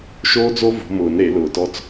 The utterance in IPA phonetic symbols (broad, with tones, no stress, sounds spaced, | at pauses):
ʃ oː˦ d͡z o˦ v o̤˨˦ m ʊː˨˩˦ n ɾ e˨˩˦ l ʊː˧˩ t ɔ˥˨ t͡s